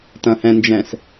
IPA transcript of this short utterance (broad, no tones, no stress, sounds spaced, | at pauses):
t ɐ̃ h ɛ̃ n d͡ʒ ɛ̃ s